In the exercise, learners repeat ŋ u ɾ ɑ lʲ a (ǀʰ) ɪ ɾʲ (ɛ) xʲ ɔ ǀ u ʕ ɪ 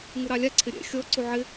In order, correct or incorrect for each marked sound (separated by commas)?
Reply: correct, incorrect